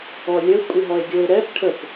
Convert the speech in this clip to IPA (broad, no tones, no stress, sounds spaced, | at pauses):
ɔ lʲ ə kʷʼ i ɦ ɔ e̯ ɡʲ o e̯ ɾ ɛ p ʈʰ ə p